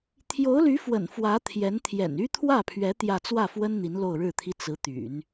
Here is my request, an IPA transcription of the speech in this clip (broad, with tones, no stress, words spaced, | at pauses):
t̪ʰjo˧˥ʊ̯ly˧˥fwə̰˨˩n fwä˧˥t̪ʰjɛ˧˥n t̪ʰjɛ̰˨˩ny˥t̪ʰwä˥˩pʰɥɛ˧˥ t̪jä˥˧ t͡swä˥˩fwə˥n n̪i˧˥nlo˥˧ʊ̯ɻɻ̩˥˩t̪ʰi˥ t͡sɹ̩˧˥t̪y̰˨˩˦n